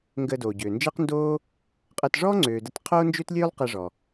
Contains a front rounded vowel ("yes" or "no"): yes